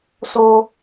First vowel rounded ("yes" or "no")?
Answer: yes